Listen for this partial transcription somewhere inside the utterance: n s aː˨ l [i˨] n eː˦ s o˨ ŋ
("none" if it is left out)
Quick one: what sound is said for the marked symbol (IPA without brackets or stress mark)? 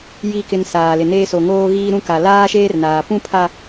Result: ɪ˨